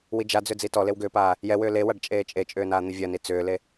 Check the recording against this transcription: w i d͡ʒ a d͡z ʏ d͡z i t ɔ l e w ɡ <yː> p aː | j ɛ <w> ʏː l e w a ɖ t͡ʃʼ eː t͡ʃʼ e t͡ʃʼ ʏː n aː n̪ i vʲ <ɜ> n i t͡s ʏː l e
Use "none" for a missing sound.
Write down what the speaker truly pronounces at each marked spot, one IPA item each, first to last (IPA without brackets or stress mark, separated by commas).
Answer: ʏː, w, ɜ